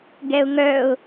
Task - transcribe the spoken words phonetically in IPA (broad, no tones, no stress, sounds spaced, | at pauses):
ɡ ɛ ʊ̯ ŋ œ ʊ̯